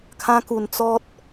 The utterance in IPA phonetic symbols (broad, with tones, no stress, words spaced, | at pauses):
kʰã˧ku˨˩n t͡sɔ˦t̚